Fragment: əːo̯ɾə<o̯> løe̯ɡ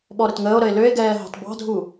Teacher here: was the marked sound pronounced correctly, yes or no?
no